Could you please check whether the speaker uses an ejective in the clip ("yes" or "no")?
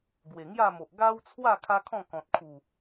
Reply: no